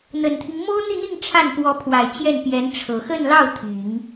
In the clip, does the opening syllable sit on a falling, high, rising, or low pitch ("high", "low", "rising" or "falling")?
low